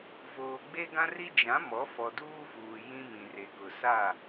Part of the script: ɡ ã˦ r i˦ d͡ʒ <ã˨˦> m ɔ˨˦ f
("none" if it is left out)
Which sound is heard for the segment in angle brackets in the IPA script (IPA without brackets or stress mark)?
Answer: ã˨˦